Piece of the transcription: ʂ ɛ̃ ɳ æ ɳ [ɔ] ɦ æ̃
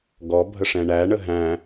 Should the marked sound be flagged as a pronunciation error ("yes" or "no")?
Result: yes